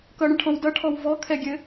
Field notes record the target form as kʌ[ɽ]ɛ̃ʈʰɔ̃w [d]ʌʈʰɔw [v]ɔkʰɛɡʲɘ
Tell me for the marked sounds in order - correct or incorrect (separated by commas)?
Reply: correct, correct, correct